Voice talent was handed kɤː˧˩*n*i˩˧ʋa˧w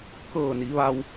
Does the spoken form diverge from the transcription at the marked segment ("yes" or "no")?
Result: no